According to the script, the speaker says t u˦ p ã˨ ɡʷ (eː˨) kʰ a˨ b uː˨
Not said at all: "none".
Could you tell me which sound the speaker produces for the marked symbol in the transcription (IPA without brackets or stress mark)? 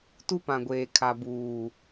eː˨